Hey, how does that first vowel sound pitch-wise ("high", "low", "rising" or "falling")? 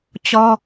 high